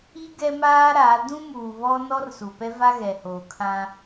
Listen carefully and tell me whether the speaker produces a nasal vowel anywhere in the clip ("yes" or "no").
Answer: yes